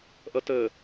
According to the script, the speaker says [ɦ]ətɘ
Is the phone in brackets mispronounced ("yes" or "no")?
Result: yes